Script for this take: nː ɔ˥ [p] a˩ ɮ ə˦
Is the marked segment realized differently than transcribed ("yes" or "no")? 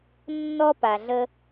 no